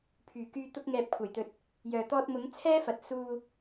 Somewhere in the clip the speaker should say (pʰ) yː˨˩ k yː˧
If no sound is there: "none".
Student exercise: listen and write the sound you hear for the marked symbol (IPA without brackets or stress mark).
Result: pʰ